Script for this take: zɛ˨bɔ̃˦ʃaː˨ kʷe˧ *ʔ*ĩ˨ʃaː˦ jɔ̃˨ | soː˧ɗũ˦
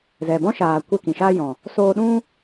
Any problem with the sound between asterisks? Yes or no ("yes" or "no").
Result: yes